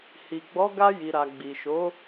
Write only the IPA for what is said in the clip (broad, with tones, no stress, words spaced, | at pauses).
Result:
hi˨ɡ͡bɔ˨˦ ɡa˧ji˨ɾa˨ ɡ͡bi˨ʃo˨˦